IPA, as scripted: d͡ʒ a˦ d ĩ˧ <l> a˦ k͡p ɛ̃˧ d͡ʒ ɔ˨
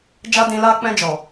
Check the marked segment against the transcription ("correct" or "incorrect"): correct